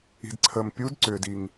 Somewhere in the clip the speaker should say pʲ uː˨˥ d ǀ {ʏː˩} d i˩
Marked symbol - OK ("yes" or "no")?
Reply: yes